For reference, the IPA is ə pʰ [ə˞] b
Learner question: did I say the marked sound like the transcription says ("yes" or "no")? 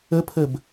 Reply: no